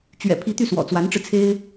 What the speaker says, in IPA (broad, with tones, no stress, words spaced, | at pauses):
t͡ɕɥɛ̰˨˩pʰi˧˥ t̪y˥˩ swɔ̰˨˩t͡swa˧˥nʈ͡ʂɻ̩˧ t͡sʰe˥ɪ̯